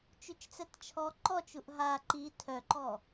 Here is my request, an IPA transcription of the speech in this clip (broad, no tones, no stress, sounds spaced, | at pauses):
t͡ʃ y t͡ʃ t͡s ɛ t t͡ʃʰ ɔ ǃ ɔ t͡ʃ u ʔ ɦ a ǃ i tʰ œ ǃ ɔ